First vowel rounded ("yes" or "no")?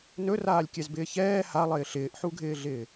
yes